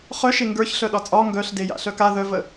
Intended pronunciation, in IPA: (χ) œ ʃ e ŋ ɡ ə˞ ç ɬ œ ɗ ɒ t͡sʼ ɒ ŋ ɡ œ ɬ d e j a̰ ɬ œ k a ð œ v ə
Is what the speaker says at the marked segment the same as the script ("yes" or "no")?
yes